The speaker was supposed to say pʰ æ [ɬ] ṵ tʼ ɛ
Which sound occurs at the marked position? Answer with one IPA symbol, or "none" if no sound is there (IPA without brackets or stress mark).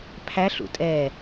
ɬ